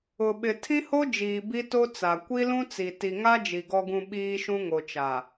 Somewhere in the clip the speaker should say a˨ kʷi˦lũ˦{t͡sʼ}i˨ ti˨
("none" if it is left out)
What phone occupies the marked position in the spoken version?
t͡s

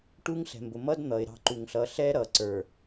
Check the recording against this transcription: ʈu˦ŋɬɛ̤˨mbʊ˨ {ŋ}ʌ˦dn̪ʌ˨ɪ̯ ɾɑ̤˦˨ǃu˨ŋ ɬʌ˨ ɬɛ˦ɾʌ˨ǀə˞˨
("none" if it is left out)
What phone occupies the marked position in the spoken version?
m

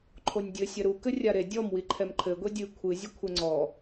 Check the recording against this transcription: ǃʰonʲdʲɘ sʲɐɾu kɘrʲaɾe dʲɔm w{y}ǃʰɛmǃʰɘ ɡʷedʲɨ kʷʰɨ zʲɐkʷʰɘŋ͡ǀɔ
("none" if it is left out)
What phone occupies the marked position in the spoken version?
i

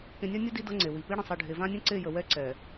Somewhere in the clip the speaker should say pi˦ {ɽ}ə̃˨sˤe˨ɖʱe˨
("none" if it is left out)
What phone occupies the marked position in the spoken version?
ɽ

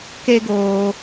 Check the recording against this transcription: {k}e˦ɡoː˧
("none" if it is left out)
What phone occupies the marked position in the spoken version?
k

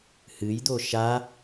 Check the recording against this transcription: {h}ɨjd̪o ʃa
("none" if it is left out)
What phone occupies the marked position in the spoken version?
h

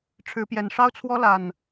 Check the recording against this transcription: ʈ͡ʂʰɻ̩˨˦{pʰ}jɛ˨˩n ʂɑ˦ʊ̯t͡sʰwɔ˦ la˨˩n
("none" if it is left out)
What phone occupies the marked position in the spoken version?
p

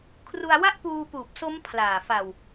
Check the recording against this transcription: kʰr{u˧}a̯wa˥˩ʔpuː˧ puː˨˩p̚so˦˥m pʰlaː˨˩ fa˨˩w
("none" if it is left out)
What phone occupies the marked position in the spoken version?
u˧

